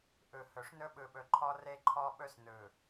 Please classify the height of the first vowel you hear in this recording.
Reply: high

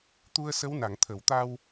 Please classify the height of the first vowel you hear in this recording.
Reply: high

